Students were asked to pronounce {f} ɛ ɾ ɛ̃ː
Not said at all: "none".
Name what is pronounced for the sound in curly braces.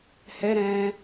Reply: h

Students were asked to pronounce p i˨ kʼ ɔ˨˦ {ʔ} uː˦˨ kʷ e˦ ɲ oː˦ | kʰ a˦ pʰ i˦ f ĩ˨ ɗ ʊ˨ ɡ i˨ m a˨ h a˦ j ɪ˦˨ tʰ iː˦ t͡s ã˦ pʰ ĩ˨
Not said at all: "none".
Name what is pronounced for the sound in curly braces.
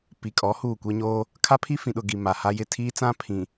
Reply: h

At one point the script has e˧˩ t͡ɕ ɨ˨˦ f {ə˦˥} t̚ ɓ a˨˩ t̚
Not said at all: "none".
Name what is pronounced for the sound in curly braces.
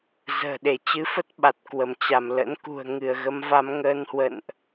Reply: ə˦˥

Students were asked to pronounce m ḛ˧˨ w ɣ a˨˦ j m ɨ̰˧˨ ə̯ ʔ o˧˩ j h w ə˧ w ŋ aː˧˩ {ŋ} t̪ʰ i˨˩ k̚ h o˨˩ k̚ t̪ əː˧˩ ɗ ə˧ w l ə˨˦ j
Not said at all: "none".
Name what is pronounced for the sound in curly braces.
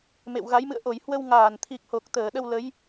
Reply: n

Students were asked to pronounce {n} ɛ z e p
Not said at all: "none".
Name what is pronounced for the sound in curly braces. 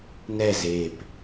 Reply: n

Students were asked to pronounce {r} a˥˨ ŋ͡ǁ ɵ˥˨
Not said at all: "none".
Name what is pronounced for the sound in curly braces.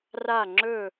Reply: r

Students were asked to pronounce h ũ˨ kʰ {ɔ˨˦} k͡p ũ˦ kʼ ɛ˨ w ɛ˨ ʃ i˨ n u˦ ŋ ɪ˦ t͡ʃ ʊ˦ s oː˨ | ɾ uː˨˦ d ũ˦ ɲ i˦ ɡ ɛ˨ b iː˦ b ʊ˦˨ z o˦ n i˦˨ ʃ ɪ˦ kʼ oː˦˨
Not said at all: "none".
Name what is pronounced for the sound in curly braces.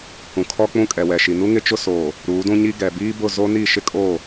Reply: ɔ˦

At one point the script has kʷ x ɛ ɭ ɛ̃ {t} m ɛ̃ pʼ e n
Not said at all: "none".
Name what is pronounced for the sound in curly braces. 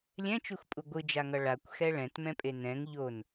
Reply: t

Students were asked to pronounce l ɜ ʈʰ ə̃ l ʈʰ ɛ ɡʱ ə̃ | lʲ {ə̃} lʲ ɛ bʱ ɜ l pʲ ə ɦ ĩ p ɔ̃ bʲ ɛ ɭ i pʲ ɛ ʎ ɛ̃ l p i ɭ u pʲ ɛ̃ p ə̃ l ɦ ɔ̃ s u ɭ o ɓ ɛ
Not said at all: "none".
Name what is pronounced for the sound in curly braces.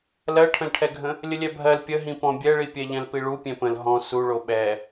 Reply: ə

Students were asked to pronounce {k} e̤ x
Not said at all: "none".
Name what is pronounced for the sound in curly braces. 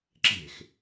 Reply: ǁ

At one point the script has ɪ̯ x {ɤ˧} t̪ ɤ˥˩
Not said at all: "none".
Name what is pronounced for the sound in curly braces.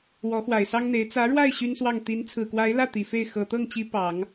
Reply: ɤ˨˩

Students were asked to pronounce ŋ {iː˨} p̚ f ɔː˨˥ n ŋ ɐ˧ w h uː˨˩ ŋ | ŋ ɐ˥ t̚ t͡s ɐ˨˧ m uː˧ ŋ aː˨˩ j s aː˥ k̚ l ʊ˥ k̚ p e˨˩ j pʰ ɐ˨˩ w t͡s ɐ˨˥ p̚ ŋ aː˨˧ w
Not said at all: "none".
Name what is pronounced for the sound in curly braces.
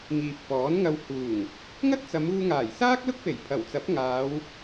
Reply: iː˨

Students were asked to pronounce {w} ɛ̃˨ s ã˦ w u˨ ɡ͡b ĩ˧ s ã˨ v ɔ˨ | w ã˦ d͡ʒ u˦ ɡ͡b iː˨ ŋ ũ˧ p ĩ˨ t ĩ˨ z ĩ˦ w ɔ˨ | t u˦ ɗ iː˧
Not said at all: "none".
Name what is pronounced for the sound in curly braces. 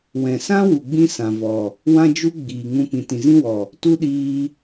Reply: w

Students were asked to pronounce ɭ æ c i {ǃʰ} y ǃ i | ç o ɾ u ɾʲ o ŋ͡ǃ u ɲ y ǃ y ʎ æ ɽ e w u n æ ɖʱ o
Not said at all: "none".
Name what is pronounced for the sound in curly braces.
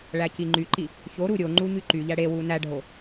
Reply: ŋ͡ǃ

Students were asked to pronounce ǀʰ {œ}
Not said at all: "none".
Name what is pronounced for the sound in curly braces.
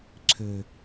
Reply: ø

